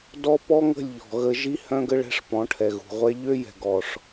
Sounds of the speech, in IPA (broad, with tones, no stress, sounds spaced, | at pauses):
d ɔ˦ p ɔ˦ ŋ ə̤˦˨ lʲ ʎ ɔ̤˨ ɣ ə˧ ʒ i˦ h œ̃˧ ɡ ə˧ ɭ ɛ̤˦ ʂ p ɔ̃˨˦ ʈʰ ɛ˨ ɣ ṳ˨ ʁʷ ɛ˧ ʎ ø˦ j ɛ̤˨ ɡ ɔ˨ ʂ